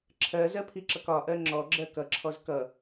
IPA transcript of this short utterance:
ǁʰɜzɜpʰiǁʌk ɒʔɜ ŋ͡ǁɔɡ͡ǁɜ kʌǁʰɔz kʌ

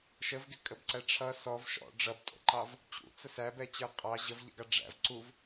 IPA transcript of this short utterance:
ʃəvɡɪkʼəbǀæ ʈ͡ʂʰʌ sɔv ʃɔ̰ ɖ͡ʐʌbtʼə̰ǃɑv | t͡ɕṵt͡sə sæbɛt͡ɕə˞ qʼɑ ʑəvʎə̰ɡɑ ɖ͡ʐæ̰v ǀuv

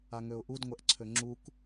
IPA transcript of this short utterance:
aŋøʊ̯ʔud ŋʷɛʔǀʰøŋ͡ǁuk

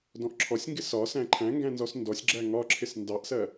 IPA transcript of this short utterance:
dɔ̃ʔǁʰɔsʲŋɡɪ sɒ sæ̃ǃʰæ̃ŋɡæ̃ nzɔsndɔsʲɡ͡ǁæ ŋɒǁʰɪs ndɑʔsɜ

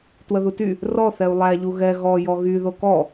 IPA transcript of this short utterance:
twəðuty | rɔθɛu̯ lˠæʎu ɣɛ ɣɔ jɔɣy ðokɔ

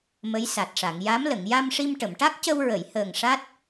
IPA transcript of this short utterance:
mə˧˥jsa˨˩t̚ʂa˨˩˨ŋ ja˧˥mlə˨˩˨ŋ ja˧mʂi˧mʈə˨˩˨mʈa˦˥k̚ cə˧wɹə˨˩˨jhəː˨˩ŋ ʂa˦˥t̚

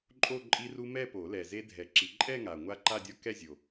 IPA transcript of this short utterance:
ǃʼo˥˧ǃʼi˦˥ru˦˥ mɛ˥˧po˨˩˦ lɛ˨˩ ze˦˥dʱɛ˨˩˦ǁi˨˩˦ ǃʼɛ˥˧ŋa˨˩ ŋʷa˦˥ǃa˥˧dʲɔ˦˥kɛ˥˧ zʲo˨˩

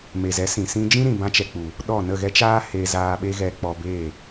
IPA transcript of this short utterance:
me˨zɛ˨˦ sĩ˨ sĩ˧d͡ʒĩ˦ɾĩ˨ bã˦t͡ʃɛ˧k͡pu˨ | ɗɔ˦˨ nə˦˨ɣɛ˦t͡ʃaː˦he˧ zaː˧ ɓe˦ɣɛ˧k͡pɔ˧be˦˨

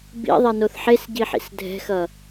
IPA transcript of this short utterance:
bḭðˤɛnoθ ħesɟiħḭs dʱɛ̤xʌ

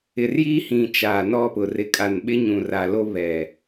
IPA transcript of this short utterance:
ɪ˨rji˦hĩ˨ t͡ʃaː˨nɔ˦pʊ˨ rɪ˨kʼa˨nɓɪ˦ɲũ˨ ra˨lo˦ βɛ˨

